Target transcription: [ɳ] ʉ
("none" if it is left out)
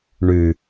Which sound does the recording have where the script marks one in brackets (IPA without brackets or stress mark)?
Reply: ɳ